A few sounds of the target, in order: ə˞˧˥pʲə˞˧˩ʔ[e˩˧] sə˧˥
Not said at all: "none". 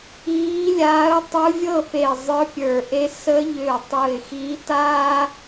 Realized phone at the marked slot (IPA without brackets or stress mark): e˧˥